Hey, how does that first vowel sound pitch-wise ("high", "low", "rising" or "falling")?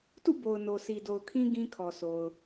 falling